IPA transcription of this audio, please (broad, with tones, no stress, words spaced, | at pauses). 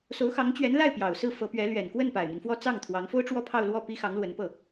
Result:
so˧˥ʊ̯xɑ˧˥ŋt͡ɕɥɛ˧˥nla˥˩ɪ̯ pjɑ˨˩ʊ̯sɹ̩˥˩fɤ˧˥pɥɛ˧˥ lɥɛ˨˩nkwə˥˩n pa˨˩ɪ̯mi˦nfwɔ˥ t͡sɑ˥˩ŋt̪ʰwɑ˧˥ŋ fo˥ʊ̯ʈ͡ʂwɔ˥˧pʰɑ˥˧ʊ̯lwɔ˥˩ pi˥ xɑ˧˥ŋlwə˧˥npɤ˥˩